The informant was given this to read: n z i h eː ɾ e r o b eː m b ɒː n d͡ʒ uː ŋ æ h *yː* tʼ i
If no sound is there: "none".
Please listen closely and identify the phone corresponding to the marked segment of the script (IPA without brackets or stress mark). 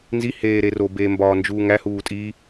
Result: uː